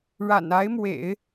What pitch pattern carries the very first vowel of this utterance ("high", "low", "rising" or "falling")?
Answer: low